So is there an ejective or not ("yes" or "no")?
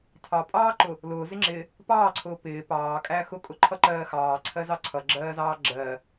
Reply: yes